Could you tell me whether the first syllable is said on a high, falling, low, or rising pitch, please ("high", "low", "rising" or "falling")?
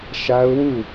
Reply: high